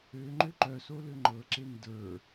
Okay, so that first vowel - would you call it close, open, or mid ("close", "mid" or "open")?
mid